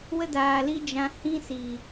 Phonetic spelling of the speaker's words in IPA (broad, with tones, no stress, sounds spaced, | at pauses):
w ə˦ d aː˨ l i˦ d͡ʒ ã˧ h ĩ˦ s i˨